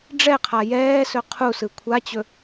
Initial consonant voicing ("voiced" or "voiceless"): voiced